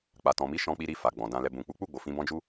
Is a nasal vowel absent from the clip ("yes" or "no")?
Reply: no